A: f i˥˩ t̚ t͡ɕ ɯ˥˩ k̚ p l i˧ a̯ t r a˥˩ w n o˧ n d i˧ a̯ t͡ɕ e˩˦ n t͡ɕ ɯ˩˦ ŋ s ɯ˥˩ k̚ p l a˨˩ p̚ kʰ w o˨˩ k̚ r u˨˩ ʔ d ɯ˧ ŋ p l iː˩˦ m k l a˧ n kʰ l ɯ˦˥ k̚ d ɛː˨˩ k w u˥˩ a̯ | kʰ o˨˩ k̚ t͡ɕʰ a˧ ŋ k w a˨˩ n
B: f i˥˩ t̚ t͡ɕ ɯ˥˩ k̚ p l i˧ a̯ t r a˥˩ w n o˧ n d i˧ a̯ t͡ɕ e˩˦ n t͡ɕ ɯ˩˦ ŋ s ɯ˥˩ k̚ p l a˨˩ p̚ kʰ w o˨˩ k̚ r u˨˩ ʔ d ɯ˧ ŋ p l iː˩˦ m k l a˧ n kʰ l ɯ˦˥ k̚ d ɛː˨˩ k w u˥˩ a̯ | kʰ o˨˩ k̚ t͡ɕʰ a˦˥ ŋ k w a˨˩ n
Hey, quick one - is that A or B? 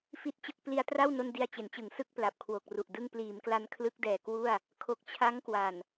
B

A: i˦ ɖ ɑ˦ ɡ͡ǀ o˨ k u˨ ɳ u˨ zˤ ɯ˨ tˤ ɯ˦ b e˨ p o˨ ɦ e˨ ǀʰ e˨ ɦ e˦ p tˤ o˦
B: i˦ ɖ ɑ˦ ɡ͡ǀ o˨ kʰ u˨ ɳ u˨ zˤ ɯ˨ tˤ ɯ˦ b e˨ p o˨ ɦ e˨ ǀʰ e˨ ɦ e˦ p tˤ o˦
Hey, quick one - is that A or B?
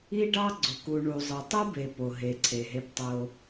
A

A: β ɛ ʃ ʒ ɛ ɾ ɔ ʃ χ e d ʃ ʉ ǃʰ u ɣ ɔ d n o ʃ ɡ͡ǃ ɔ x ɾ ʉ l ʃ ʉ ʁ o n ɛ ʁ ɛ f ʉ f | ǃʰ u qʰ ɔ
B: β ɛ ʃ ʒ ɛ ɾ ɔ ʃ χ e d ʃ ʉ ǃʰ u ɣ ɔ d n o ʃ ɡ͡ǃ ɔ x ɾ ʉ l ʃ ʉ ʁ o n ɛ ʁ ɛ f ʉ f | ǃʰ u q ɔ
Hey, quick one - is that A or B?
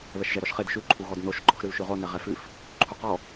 B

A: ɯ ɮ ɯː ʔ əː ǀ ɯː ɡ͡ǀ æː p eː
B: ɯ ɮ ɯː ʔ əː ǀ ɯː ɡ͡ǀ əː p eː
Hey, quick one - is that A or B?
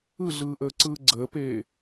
B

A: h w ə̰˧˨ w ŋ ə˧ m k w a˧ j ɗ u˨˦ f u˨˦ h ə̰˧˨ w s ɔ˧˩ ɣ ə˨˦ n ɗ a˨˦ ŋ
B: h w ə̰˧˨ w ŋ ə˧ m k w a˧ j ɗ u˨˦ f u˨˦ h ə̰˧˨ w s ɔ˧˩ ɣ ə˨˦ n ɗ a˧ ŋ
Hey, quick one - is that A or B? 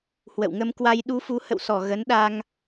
B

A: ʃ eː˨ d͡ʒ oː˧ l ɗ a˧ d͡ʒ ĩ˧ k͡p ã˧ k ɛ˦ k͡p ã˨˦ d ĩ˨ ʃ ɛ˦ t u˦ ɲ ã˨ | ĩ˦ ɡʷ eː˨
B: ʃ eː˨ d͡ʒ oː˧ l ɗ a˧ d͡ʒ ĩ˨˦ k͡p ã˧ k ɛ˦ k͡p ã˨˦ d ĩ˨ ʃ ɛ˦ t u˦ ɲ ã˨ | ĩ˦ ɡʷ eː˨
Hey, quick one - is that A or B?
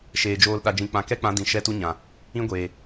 A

